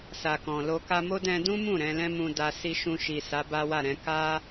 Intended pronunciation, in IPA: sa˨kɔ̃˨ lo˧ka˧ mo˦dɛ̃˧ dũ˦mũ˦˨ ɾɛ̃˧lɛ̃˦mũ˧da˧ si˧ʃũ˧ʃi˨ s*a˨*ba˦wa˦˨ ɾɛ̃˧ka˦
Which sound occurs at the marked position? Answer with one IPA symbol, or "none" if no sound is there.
a˨˦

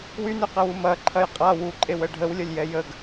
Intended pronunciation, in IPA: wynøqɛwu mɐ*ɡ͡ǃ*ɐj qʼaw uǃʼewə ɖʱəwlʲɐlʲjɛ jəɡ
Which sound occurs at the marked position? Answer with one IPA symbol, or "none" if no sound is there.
ǃʰ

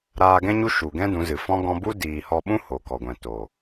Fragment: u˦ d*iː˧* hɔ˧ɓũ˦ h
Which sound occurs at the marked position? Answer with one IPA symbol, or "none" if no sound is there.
iː˨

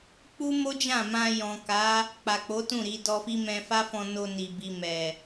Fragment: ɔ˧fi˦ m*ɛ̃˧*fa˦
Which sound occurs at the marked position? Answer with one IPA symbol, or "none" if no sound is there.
ɛ̃˧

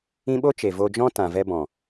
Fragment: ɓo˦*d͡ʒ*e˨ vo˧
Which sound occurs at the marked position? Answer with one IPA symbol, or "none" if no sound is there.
t͡ʃ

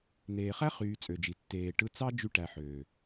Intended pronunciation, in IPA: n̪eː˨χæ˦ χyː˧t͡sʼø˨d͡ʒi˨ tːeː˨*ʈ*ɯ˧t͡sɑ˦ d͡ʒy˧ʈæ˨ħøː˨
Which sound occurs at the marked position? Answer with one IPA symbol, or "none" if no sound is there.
ʈ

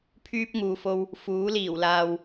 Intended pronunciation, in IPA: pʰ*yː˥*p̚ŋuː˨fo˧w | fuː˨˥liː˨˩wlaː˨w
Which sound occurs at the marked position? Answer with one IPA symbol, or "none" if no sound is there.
yː˥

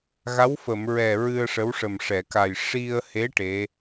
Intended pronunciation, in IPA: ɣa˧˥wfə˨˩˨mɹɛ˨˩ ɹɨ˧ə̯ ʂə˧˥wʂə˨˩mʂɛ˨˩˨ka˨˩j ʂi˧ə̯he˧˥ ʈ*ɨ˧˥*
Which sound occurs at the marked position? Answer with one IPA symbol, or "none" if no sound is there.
e˧˥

